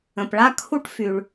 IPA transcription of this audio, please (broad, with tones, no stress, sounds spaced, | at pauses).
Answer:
ə̃˩ p ɭ a˥ kʰ u˥ ʈ f y˩ ɭ